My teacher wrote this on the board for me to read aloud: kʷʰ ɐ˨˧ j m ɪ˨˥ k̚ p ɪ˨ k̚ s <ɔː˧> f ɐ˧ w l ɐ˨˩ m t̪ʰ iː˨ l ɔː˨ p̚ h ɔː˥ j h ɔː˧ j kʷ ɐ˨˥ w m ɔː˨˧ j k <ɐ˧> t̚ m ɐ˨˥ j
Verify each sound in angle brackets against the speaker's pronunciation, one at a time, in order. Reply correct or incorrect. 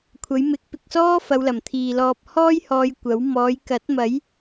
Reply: incorrect, incorrect

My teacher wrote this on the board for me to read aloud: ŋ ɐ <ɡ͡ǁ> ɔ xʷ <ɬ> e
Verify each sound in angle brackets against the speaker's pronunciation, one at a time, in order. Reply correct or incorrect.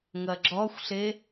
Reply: correct, correct

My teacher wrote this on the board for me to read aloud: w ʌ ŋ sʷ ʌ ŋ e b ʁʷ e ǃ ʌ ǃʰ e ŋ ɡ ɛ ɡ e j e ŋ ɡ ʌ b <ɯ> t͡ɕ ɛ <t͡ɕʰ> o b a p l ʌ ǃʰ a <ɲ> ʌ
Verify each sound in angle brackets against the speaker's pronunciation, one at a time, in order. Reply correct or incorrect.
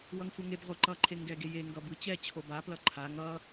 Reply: correct, correct, incorrect

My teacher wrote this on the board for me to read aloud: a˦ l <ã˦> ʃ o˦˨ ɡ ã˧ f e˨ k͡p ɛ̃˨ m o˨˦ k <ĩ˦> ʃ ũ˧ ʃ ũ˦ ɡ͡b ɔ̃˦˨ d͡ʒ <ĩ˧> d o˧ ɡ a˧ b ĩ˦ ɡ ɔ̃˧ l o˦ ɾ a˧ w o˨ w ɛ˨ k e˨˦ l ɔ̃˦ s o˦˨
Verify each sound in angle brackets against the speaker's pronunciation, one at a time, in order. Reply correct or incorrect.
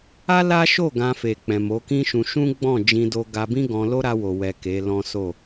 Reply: incorrect, correct, correct

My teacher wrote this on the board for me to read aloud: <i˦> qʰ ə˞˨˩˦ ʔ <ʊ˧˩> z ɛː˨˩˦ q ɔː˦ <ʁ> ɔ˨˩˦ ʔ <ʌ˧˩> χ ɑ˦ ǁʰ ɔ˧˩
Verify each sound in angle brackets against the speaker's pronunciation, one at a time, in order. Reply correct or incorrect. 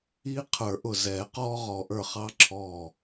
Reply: correct, correct, correct, incorrect

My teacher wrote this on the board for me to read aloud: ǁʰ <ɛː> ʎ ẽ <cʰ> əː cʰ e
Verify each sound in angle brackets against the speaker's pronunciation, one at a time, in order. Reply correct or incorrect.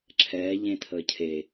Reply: correct, incorrect

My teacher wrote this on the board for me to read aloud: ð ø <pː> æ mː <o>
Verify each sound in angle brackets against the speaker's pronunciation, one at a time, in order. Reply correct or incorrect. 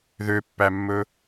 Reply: correct, incorrect

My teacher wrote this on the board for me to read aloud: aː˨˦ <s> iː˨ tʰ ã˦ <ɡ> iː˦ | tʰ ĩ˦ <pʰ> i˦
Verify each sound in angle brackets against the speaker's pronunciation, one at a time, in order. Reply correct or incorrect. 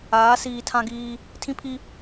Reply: correct, correct, correct

